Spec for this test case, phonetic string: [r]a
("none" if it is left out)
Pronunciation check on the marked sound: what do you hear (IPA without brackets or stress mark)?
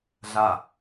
ɮ